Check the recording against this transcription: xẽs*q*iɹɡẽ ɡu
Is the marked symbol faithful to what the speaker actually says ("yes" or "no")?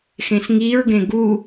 no